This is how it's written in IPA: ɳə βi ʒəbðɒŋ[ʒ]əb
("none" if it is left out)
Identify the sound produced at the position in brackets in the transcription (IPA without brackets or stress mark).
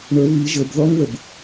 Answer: ð